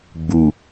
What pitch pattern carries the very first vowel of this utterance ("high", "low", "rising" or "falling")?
low